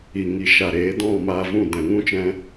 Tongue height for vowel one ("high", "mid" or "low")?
high